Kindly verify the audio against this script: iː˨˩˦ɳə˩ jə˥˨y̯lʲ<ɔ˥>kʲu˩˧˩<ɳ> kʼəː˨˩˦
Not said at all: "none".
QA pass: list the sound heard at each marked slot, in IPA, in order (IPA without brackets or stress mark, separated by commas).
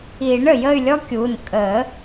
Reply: ɔ˥, n